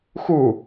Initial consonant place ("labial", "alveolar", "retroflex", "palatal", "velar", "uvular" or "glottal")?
velar